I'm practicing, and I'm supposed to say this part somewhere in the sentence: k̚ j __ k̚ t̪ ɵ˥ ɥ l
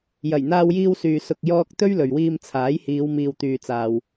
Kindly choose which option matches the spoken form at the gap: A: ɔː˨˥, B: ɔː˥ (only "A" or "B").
B